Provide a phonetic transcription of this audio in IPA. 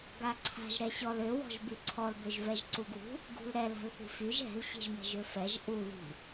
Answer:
ɡ a ǀʰ a̤ ʒ ɾ ɛ ɕ ɔ l ø w ɔ̤ ʒ b y ǀʰ ɔ l b ø ʒ v ɛ ʒ ǀ u ɡ w ṳ | ɡ ṳ l ɾ ɛ l a̤ l θ i̤ f y ʒ ɛ̤ l ɕ i̤ ʒ m ɛ̤ ʒ ø f ɛ ʒ ʔ u ð i̤

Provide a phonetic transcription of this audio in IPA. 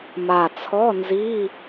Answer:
m a˨˩ t͡sʰ ɔ˧˥˧ n z i˧˥˧

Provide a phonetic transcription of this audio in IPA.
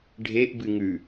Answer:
ɖʱ e ʔ b ɨ ŋ ʉ

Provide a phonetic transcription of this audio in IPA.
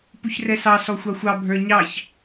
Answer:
p u ç r ɛ s ɑ s ɔ xʷ ɑ xʷ ɑ bʱ ə˞ ɲ ɑ ç

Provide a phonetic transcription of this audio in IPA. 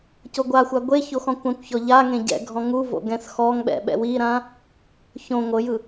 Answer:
c o ɡʷ a xʷ a ɡʷ e ç o x ɔ̃ kʷ ã kʷ ç ɔ ʎ a ŋ ẽ ɟ ɛ̰ ɡʱ ɔ̃ ŋ u v o̰ ɡ ɛ̃ s x ɔ ŋ ɓ ɛ̰ ɓ ɛ̰ w i ɾ ã | ç õ ŋʷ ɤ j ɯ

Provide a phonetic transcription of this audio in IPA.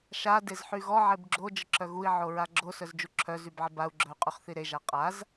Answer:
ʃ a d e z ħ y ɣ ɔ ʕ e b ɡ͡ǁ o d͡ʒ ə ǁʰ œ ɣ u i̯ ʕ o ɹ a ɡ͡ǁ o s œ z d͡ʒ u ǁʰ œ z y b ʕ ə b a u̯ ɡ͡ǁ œ y̯ qʼ y χ θ i ɾ e ʒ a qʼ a z

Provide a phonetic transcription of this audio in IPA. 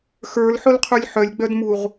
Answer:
x ə˞ l ħ ʊ l qʰ u lʲ ħ œ lʲ ɡ͡b œ d m u ʁ

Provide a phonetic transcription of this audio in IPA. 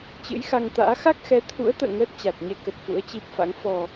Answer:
t͡ɕ ɨ̰˧˥ j x a˧ ŋ t̪ a̰ː˧˥ x a˦˥ k̚ x ɛ˨˦ t̪ʰ ṵ˧˥ ə̯ t̪ ə̰ː˧˨ ŋ əː˦˥ t̚ t͡ɕ a˨˩ t̚ ɲ ɛ˧ k ə˨˩ t̚ f ṵ˧˥ ə̯ t͡ɕ i˦˥ p̚ f a̰˧˥ ŋ f ɔ˨˩

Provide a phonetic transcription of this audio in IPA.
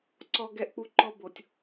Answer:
ǀ ɔ˦ ɡ ɛ˦ ʔ k͡p u˦ ǃ ɔ˦ b o˨ tʲ

